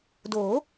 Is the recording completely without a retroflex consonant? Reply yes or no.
yes